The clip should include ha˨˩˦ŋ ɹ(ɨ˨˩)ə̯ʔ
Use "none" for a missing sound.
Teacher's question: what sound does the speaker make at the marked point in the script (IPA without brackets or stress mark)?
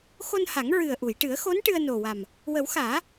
ɨ˨˩